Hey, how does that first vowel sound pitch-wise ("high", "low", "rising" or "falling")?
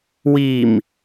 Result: low